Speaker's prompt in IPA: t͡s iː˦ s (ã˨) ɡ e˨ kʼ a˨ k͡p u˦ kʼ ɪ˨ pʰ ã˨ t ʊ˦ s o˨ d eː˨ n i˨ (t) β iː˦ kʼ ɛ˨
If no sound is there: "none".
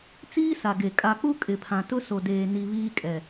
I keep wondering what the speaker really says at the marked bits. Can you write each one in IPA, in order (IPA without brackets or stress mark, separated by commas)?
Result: a˨, none